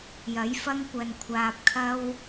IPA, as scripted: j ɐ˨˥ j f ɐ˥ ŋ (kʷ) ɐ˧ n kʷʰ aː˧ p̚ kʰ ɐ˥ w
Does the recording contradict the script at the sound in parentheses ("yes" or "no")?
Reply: no